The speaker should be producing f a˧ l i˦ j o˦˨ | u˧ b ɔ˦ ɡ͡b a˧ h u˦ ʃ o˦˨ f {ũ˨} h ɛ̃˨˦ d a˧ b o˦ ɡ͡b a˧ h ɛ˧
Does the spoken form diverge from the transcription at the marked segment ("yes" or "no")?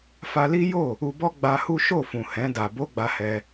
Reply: no